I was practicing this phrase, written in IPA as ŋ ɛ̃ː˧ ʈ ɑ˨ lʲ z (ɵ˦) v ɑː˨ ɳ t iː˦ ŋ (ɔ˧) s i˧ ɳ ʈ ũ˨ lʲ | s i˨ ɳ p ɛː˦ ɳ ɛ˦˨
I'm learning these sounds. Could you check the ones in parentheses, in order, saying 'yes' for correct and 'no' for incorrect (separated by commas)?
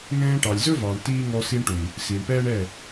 yes, yes